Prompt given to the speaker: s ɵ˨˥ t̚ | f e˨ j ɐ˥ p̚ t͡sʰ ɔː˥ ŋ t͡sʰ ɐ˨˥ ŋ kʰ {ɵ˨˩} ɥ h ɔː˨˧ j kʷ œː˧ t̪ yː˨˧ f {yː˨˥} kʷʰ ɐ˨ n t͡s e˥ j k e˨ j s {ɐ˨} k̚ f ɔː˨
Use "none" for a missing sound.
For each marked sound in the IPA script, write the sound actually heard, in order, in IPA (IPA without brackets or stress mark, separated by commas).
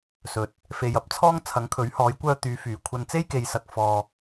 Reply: ɵ˨˥, yː˨˩, ɐ˨